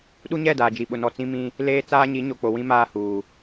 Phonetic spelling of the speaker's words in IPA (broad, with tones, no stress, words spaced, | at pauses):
ɗu˦ɲɛ˦˨ daː˨d͡ʒi˨ɓʊ˨nɔ˨ t͡sĩ˦mĩ˦ | leː˦t͡saː˦ɲi˨˦ɲo˨ k͡po˨wĩ˦ maː˦huː˨